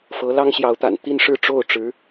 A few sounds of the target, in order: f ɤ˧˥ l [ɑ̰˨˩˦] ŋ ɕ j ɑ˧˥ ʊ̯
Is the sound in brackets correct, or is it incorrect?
incorrect